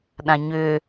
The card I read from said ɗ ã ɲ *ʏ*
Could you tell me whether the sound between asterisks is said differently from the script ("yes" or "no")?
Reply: no